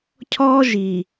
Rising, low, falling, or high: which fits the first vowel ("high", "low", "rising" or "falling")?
high